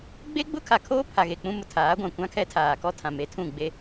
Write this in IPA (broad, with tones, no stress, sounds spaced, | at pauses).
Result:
ɡ͡b e˦ ɡ͡b ʊ˦ kʰ a˨ kʰ oː˦ pʰ a˨ ɣ e˨ k͡p ũ˦ m ʊ˨ tʰ aː˨˦ ɡʷ ã˨ kʷ ã˦ kʰ ɛ˦ tʰ aː˨ k ɔ˦ tʰ ã˨ m e˨˦ tʰ ũ˦˨ ɡ͡b e˦